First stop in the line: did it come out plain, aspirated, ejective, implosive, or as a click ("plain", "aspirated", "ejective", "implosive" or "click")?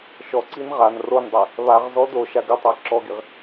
click